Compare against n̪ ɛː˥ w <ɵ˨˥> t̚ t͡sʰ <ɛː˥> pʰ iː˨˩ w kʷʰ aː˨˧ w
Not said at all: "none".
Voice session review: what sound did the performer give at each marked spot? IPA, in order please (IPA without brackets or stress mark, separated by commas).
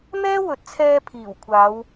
ɵ˨˥, ɛː˧